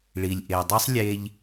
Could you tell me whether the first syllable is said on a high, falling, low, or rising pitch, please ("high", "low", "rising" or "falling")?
low